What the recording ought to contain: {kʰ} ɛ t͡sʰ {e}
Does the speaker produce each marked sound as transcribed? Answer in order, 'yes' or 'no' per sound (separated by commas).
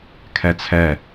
yes, no